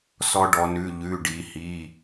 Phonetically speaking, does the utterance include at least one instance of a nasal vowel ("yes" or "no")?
no